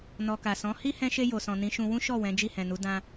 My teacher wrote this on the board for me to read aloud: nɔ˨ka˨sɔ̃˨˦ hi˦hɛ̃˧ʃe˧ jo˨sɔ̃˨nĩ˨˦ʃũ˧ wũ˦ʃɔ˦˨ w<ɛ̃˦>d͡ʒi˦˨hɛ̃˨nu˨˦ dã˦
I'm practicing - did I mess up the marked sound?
yes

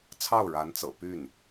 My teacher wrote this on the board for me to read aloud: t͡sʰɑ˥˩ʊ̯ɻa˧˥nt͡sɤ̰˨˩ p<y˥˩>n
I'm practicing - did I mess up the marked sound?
no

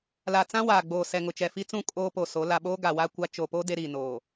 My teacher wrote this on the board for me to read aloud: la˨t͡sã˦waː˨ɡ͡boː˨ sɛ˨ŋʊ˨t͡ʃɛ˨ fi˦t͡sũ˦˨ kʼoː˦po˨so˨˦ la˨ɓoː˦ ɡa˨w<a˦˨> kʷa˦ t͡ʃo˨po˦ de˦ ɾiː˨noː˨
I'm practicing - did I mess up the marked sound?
yes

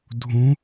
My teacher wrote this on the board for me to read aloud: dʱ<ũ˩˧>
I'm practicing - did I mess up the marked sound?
no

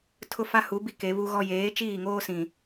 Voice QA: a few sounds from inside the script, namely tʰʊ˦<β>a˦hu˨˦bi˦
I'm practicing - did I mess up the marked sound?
yes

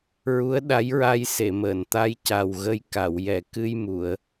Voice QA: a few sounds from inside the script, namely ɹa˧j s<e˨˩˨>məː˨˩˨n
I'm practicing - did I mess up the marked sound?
no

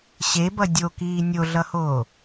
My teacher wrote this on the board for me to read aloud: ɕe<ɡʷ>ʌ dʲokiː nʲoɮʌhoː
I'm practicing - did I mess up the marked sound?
yes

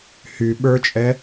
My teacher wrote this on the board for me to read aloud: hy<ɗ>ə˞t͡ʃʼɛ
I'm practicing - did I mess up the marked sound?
yes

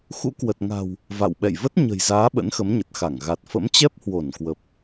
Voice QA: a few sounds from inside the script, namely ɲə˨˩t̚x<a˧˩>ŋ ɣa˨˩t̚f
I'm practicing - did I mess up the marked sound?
no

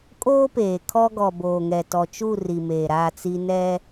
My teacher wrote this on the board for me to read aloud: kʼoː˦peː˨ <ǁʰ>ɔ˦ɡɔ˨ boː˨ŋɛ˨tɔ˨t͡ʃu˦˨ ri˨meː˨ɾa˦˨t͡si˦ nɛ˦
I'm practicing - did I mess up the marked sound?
yes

